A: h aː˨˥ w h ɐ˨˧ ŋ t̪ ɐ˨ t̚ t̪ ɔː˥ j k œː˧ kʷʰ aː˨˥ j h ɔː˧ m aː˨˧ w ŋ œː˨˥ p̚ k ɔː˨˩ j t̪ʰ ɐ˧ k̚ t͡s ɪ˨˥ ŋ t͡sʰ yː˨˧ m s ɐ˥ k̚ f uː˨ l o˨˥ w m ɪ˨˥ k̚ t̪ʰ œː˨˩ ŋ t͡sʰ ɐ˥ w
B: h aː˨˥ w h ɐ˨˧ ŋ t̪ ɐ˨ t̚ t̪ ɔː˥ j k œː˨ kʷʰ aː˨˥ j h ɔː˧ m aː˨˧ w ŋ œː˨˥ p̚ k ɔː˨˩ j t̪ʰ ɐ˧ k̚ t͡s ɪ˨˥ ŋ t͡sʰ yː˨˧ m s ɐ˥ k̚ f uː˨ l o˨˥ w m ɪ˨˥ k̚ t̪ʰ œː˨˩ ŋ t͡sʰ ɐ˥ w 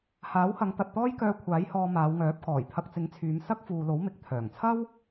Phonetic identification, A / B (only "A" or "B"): A